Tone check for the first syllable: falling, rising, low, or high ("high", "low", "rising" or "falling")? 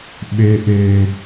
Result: low